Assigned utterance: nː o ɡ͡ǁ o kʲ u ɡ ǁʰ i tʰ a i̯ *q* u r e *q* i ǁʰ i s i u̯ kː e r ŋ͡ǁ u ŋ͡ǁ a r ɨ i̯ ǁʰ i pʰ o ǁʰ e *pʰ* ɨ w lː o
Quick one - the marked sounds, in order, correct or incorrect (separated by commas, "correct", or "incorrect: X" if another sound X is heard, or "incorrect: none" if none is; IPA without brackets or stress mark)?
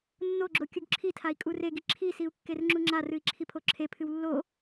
incorrect: kʼ, incorrect: ɡ, correct